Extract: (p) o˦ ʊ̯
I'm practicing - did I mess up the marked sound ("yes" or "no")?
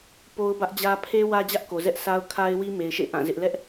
no